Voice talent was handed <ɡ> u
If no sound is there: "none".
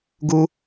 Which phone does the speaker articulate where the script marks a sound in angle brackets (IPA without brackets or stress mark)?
ɡ